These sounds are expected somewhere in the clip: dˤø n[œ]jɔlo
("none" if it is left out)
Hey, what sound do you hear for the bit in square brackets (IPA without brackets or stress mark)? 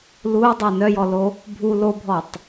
œ